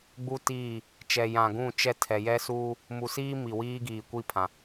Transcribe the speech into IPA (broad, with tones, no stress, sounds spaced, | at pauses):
ɡ͡b u˦ t iː˦˨ | t͡ʃ ɛ˨ j ã˨ ɡ ũ˦˨ t͡ʃ ɛ˦ tʰ ɛ˨ j ɛ˦ s uː˦ | m u˨ s iː˦ m i˨ w iː˦ ɡ iː˨ kʷ i˦˨ pʰ ã˨